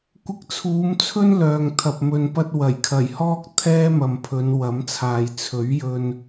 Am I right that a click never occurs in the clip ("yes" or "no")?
yes